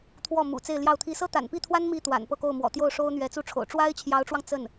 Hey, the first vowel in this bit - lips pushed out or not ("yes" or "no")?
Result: yes